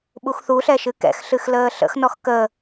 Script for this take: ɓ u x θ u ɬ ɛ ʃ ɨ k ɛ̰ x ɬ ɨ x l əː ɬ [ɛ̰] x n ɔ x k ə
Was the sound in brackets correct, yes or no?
no